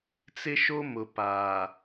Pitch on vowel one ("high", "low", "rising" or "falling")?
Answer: high